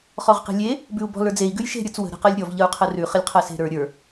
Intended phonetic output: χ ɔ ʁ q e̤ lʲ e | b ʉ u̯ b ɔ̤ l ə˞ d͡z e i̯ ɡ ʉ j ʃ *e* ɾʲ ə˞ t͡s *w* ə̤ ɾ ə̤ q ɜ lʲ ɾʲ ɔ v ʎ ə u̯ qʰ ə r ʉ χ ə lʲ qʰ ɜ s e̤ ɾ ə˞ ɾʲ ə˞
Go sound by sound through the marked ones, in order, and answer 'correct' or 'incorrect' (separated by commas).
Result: incorrect, correct